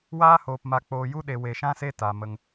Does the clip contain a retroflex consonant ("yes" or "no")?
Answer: no